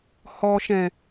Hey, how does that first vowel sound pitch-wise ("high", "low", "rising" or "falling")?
low